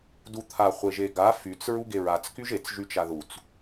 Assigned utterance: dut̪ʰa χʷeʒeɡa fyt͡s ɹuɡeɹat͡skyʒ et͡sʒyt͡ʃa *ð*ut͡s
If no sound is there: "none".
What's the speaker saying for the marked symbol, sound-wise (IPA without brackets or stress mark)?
ð